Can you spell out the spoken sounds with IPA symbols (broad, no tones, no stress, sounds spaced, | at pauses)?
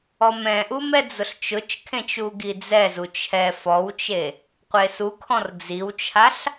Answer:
ɔ m ɛ̃ ʔ u m ɛ d͡z ʊ ɬ t͡ʃ ʊ t͡ʃ kʰ ẽ t͡ʃ u ɡ i d͡z ɛ z u t͡ʃʰ ɛ f ɔ w t͡ʃ e | qʷ e s u kʰ ɔ̃ r d͡z i w t͡ʃʰ a ɬ